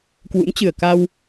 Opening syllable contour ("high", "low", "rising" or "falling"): rising